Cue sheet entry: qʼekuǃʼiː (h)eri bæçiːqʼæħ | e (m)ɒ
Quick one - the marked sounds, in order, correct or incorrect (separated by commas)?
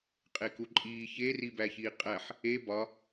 incorrect, incorrect